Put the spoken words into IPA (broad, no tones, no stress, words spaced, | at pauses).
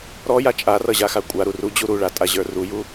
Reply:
ɾɔja t͡ʃʼarʌʑaxa kʷʼaɾu rud͡ʑu ɾuɭatʼaʑə˞ ruju